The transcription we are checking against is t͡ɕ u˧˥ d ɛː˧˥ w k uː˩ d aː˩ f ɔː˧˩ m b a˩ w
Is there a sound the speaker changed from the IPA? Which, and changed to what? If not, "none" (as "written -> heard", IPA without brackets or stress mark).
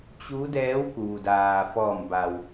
none